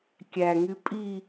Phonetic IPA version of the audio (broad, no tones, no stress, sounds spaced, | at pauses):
kʲ æ ŋ y pʼ i